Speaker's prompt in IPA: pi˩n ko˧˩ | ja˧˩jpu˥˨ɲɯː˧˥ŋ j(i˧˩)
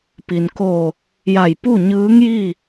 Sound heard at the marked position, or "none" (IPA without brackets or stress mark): i˥˨